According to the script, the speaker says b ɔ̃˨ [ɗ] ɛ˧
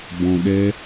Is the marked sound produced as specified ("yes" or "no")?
yes